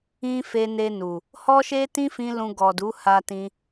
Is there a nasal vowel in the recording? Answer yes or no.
yes